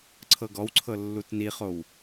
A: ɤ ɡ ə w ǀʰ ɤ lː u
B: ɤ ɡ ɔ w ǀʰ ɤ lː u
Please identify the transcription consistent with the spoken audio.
B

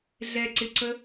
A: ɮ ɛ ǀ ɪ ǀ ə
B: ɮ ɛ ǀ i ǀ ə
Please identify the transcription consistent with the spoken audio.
A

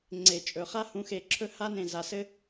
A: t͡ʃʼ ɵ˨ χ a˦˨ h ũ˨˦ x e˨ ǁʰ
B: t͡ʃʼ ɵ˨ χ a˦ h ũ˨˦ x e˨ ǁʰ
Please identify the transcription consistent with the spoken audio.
B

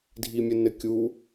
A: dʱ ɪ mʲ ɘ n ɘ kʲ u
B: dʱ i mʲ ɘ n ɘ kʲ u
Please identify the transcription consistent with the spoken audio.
B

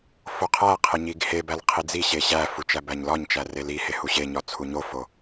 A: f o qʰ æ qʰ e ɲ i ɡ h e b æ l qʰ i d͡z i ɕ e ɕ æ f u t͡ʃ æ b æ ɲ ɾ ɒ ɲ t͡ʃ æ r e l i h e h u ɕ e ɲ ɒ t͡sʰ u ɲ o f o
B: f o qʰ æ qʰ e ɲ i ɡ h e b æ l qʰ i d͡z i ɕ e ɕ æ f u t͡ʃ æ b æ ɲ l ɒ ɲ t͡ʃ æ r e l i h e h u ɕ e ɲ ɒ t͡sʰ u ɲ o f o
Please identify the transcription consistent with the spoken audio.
B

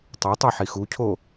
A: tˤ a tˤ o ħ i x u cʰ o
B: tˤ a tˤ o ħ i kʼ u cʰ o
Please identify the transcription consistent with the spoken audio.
A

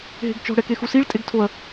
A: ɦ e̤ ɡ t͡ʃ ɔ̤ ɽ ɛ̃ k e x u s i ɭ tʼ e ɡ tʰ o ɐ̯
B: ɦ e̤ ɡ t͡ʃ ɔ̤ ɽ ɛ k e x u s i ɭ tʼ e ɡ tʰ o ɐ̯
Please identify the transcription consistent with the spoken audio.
B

